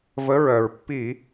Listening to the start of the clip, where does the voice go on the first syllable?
rising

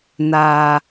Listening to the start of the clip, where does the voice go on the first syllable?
low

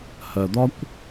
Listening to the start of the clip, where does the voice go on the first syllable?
low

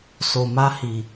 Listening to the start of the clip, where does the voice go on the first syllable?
low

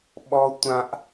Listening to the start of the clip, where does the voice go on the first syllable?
high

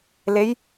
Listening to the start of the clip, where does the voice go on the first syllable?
rising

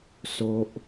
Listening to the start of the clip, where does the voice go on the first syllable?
high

